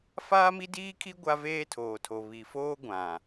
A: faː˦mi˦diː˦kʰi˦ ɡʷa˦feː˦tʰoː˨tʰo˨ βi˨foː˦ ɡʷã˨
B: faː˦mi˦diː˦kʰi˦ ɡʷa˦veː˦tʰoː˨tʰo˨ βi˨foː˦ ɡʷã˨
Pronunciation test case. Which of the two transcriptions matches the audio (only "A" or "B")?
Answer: B